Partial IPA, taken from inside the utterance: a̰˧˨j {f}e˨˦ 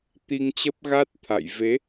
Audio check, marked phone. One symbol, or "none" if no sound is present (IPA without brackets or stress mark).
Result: v